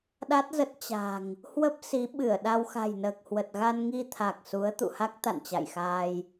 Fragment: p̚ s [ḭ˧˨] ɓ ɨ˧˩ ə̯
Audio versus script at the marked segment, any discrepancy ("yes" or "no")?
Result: yes